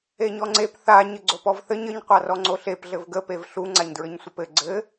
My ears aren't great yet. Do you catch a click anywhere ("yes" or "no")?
yes